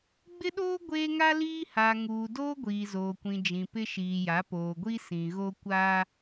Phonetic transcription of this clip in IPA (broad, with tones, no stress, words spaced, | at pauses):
ɡ͡bɪ˦ɗoː˦ ɡʷeː˦ŋa˦liː˦haː˨ ŋuː˨doː˦ ɡʷiː˨zoː˨kʷĩ˨ d͡ʒĩ˨pɪ˦ʃiː˨ja˨˦ poː˨ɡʷi˦sĩ˨ɣo˦ kʷaː˦